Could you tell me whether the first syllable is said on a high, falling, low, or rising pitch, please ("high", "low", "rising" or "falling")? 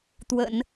low